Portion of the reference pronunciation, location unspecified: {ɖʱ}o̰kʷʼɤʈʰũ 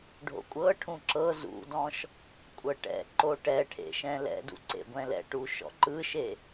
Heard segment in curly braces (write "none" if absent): ɖʱ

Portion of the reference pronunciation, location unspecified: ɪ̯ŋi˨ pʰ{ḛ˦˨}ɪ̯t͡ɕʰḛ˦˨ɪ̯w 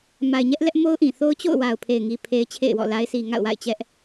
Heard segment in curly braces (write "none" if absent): e˦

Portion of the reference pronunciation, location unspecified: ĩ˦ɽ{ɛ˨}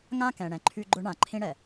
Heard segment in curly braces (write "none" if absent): ɛ˨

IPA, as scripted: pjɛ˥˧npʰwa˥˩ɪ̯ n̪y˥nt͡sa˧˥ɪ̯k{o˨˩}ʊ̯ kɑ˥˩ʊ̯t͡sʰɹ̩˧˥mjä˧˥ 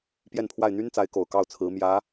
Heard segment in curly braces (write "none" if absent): o˨˩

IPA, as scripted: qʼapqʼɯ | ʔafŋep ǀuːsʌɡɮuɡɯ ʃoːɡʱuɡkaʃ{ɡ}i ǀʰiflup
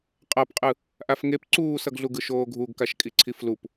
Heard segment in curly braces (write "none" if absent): kʼ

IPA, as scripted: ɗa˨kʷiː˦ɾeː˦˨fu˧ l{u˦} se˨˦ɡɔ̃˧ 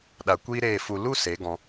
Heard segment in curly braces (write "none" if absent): u˦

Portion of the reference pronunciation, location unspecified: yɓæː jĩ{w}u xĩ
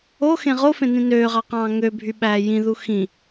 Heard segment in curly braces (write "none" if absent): ð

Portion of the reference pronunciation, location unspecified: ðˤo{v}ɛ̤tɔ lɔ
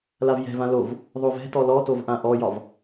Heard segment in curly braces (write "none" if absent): v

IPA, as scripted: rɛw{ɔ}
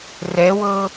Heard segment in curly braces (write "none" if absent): ɤ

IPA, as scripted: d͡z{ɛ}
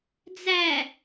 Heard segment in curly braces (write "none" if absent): æ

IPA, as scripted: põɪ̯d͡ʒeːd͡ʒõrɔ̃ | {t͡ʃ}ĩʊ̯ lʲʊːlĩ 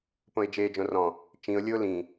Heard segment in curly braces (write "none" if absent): t͡ʃ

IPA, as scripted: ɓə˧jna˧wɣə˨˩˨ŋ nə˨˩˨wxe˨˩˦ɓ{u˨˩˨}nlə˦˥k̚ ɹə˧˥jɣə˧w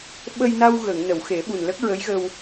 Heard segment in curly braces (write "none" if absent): u˨˩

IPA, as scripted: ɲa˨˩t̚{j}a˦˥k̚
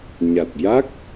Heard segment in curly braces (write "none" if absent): j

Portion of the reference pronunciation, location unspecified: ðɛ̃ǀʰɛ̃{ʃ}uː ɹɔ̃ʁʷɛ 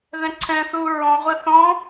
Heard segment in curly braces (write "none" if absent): θ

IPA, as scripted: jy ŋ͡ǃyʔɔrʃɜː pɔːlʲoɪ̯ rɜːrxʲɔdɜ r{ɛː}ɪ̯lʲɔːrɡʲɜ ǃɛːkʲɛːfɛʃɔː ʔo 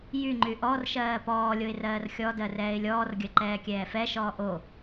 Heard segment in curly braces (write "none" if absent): ɛː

